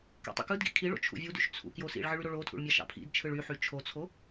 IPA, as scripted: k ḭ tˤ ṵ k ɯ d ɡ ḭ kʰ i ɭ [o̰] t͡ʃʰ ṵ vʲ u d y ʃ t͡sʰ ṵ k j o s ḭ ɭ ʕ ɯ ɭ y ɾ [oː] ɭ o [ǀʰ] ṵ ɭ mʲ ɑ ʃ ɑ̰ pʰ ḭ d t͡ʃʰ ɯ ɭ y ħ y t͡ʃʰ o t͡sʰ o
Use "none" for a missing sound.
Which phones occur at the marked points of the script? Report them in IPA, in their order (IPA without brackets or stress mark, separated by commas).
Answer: o̰, o, tʰ